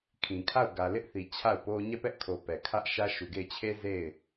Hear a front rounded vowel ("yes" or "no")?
no